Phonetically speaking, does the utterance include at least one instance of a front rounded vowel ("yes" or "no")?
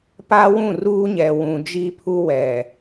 no